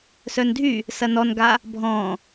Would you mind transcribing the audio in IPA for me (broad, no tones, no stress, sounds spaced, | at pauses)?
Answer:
s œ n dʱ y | s ɐ n ɔ n ɡ a | bʱ ɔ̃